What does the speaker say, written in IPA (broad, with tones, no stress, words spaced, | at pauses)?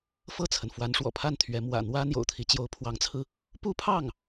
fɤ˥˩t͡sʰə˩n fwa˧˥nʂwɔ̰˨˩pʰa˥˩n t̪ʰɥɛ˧˥ mwä̰˨˩ n̪wä˥ n̪jo̰˨˩ʊ̯t̪ʰi˧˥ t͡ɕjo˧˥ʊ̯pʰwɑ˧˥ŋt͡sʰɹ̩˧ | pu˥pʰɑ˥˩ŋ